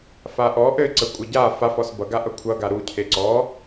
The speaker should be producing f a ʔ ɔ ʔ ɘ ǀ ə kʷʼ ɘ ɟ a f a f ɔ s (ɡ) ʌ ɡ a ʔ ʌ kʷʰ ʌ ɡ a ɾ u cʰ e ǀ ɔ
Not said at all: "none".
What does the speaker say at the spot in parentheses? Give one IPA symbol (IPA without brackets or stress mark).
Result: b